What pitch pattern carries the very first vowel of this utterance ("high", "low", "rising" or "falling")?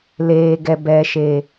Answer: low